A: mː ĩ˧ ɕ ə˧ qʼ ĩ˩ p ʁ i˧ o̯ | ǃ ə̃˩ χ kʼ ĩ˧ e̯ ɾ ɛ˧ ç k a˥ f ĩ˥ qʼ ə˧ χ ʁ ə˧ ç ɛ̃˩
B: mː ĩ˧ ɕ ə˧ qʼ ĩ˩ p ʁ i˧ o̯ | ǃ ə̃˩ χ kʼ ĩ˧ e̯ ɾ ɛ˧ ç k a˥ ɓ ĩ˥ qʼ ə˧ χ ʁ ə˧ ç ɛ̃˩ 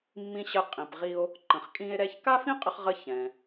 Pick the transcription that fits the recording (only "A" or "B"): A